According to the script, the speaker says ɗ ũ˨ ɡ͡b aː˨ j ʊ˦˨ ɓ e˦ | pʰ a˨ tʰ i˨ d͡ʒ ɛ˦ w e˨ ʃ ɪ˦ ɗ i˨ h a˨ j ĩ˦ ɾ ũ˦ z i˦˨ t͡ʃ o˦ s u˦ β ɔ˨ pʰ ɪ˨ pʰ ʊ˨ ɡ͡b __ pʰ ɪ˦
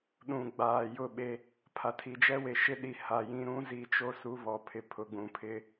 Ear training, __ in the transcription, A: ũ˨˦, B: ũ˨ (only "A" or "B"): B